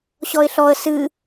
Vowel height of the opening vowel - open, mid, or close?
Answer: mid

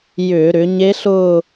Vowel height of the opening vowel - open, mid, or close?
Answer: close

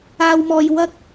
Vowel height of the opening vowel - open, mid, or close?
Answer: open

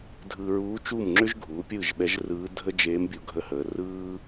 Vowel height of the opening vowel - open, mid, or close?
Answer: close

